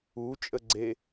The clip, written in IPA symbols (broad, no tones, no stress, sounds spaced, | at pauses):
u t͡ʃʼ ə ɡ͡ǀ e